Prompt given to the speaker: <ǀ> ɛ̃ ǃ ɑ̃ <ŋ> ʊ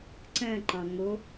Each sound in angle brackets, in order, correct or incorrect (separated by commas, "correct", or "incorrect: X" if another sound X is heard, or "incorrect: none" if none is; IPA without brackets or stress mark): correct, correct